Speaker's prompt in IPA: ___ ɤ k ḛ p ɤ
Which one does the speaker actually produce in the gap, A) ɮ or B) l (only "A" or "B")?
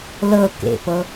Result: B